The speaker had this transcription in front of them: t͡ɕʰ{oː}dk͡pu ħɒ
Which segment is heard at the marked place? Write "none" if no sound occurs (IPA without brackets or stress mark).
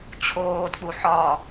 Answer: oː